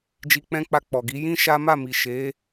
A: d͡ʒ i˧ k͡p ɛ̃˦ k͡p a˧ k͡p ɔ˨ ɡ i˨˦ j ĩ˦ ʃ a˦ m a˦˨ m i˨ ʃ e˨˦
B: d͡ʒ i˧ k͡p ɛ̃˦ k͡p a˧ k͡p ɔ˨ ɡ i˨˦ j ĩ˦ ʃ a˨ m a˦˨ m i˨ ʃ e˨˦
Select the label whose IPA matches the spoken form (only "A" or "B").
A